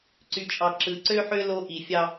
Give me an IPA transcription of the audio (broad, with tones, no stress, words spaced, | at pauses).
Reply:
ǀy˦t͡ʃʼɑ˦ ǁɯ˨ǀø˦ħø˦ lo˦ ʔi˨fʲɑ˦